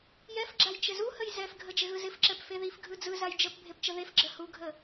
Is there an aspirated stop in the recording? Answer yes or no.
no